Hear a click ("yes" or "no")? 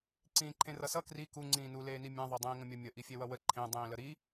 yes